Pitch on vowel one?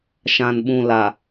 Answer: low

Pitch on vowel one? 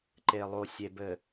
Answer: low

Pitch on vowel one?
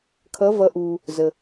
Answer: rising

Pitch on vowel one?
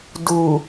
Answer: low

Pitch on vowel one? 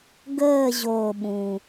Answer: falling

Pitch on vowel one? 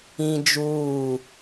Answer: high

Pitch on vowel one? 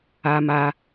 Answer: high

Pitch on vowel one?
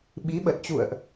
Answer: rising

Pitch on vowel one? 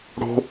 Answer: high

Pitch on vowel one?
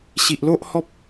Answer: low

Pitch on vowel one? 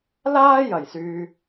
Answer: high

